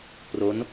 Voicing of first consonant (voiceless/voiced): voiceless